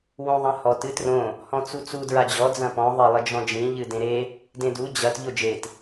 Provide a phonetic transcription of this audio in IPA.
w õ ðˤ ɐ̃ h ɔ t ɨ t r õ | h ɔ̃ t͡s u t͡s u d ɹ a d͡ʑ ɔ d͡z ɐ̃ p ɔ̃ ðˤ ɘ lˠ ɘ d͡ʒ ɔ̃ d͡ʒ ĩ ʎ ɨ d ẽ ɾ e | d ẽ d u d͡ʑ ɐ t ʎ o d͡ʒ e t

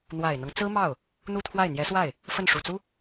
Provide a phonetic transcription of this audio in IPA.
n̪ w a˨˩ ɪ̯ n̪ ɤ˦ ŋ t͡s ɹ̩˥ m ɑ˥˩ ʊ̯ | n̪ u˥˧ t̪ʰ w a˥˩ ɪ̯ n̪ j ɛ˧˥ s w a˥˩ ɪ̯ | f ə˥˩ n ʂ u˨˩ t͡s u˥

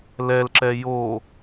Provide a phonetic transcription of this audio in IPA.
l ɛ l ǁ ɛ j o

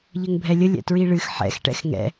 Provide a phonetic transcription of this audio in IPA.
ʎ ə ŋ bʱ ɛ lʲ ə lʲ ɛ̰ t ɹ i ɭ ɨ x ħ ɛ̰ x ʈ ɛ̰ x ŋ ɛ̰

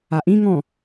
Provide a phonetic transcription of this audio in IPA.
a ʔ ĩ ŋ ɔ̃

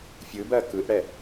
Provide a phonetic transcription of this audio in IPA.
fʲ ɯ b ɜ k ɯ ʔ ɽ ɛ

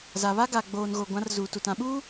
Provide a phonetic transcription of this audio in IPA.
z a˨ β a˦ ɡ a˨ ɡ͡b oː˨ n ɣ o˨ ɡʷ ã˨˦ r z uː˨ t u˨ t ã˨ ɓ uː˦

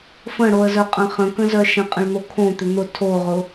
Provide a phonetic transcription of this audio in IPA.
f ə̃ ɽ o ə̯ z œ qʼ ə̃ χ ə̃ k ə̃ z œ ʃ ə̃ qʼ ə̃ ɭ n̪ o kʰ õ t̪ ʏ n̪ ʊ tʰ o ʁ ʊ

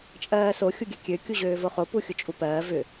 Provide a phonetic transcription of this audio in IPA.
t͡ʃʼ ɜː s o xʲ u ɡʲ ø kʲ ø kʲ u ʑ øː v o χ o p u xʲ ʊ t͡ʃʼ u p ɜː v ʏ

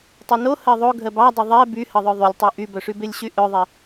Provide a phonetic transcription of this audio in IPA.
tˤ o n o h ɜ ðˤ o ɡʱ ɜ b ɑ dˤ ə ðˤ ɛ b y h ə ðˤ œ ðˤ y lʲ tˤ o ʔ y b œ ʂ y b e lʲ ɕ y ʔ œ ðˤ e

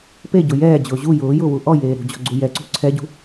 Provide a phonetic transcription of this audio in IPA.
p e ɟ ʊ j ɛː d͡ʑ ʊː ʑ u j ʊː j ʊː w u ʔ ɔ j eː ɾ ṳ d͡ʑ ɔ̤ ɡ͡ǀ u j ɛ ǀ ṳ ǀʰ ɛ ɟ ṳ

